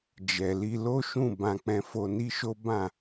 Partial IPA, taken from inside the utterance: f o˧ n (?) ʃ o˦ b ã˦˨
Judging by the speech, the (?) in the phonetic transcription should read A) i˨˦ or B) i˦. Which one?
B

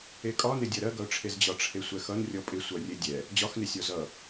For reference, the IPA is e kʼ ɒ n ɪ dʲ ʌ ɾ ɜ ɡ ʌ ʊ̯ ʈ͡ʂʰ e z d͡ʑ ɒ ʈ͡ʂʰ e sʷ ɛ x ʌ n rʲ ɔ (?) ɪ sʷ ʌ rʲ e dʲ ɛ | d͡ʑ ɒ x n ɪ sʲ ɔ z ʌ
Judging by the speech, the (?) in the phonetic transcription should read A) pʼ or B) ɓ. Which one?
A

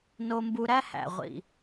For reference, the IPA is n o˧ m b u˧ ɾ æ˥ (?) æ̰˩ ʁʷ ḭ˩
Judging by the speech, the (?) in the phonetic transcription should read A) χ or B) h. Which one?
B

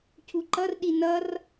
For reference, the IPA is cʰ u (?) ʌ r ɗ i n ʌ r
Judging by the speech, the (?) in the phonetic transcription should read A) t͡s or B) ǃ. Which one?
B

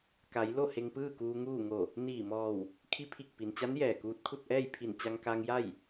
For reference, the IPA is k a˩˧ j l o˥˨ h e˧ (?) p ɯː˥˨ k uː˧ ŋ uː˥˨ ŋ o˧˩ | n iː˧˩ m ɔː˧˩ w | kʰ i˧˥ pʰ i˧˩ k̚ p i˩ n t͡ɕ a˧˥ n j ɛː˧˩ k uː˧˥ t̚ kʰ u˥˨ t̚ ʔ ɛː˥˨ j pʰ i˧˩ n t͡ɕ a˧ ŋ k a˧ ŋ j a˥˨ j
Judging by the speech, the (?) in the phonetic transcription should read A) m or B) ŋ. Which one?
B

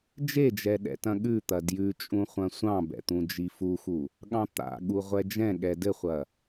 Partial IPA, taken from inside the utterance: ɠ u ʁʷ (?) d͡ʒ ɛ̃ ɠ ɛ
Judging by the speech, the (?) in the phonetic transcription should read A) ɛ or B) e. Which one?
A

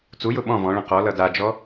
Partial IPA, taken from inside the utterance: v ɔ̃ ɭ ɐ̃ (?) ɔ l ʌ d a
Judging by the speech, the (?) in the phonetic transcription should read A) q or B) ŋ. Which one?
A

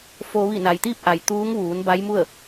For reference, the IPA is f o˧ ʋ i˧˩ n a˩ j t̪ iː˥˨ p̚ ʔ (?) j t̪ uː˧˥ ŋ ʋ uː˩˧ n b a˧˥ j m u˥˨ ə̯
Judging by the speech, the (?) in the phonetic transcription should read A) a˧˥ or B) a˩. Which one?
B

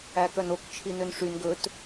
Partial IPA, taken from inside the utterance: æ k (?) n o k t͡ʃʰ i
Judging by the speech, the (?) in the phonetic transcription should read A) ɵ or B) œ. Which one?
B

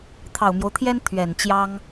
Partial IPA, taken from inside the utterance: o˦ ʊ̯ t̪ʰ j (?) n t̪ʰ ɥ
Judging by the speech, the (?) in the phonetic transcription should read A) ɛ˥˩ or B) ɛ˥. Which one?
B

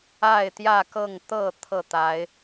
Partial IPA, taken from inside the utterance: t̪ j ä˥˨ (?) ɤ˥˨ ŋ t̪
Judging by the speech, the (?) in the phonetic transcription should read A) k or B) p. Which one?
A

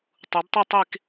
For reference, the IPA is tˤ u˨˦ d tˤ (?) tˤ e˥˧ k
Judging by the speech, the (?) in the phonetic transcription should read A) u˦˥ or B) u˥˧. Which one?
B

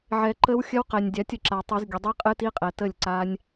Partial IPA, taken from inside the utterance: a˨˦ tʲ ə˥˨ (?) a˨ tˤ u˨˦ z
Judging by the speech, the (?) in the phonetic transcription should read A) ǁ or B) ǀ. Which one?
A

